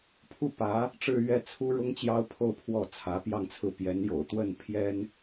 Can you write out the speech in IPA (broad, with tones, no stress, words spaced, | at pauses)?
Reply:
pʰu˥˩pä˧˥ | ʈ͡ʂɻ̩˥˧ɥɛ˥˩t͡sʰu˥ ɻʊ˥ŋt͡ɕjɑ˥ʊ̯pʰo˥˧ʊ̯ pʰwɔ˥˩t͡sʰä˧˥pjɑ˥˧ŋt͡sʰɹ̩˥˩ pjɛ˧˥njo̰˨˩ʊ̯t̪wə˥˩n pʰjɛ˥n